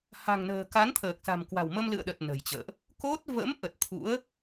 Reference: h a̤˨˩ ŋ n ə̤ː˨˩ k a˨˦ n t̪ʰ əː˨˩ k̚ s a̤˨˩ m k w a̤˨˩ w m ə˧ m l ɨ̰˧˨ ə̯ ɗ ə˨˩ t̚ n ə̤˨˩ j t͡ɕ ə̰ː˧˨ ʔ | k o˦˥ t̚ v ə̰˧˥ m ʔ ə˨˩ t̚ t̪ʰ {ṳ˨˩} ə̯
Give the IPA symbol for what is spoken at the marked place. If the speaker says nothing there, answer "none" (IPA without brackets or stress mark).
ṵ˧˥